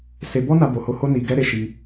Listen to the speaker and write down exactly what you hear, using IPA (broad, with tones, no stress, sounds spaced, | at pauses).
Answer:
s e˧ b ɔ˦ n a˦ b o˧ h o˦ h o˦ n i˧ ɡ ɛ˦ ɾ e˦ ʃ i˦